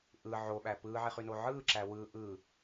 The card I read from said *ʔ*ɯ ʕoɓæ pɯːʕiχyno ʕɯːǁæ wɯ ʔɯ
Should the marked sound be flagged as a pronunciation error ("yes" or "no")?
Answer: no